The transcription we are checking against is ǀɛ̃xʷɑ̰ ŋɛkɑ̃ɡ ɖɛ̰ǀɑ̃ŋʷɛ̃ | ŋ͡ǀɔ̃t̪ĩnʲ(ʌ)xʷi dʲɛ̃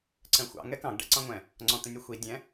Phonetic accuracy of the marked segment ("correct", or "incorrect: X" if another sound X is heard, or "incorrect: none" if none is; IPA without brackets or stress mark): correct